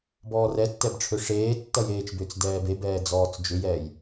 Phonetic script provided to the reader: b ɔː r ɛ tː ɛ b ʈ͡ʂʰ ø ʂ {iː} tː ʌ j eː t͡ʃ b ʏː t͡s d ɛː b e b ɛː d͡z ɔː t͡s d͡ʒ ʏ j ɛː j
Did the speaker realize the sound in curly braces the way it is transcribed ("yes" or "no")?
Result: no